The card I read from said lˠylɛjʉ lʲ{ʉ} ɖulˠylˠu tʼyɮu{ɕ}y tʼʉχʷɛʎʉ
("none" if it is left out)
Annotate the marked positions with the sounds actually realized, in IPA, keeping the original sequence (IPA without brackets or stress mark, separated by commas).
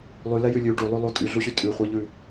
ʉ, ɕ